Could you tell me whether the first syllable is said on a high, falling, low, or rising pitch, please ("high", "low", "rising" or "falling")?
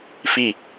falling